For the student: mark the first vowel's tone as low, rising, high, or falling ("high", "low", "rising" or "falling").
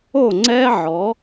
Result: falling